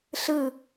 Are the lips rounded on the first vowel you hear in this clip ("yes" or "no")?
no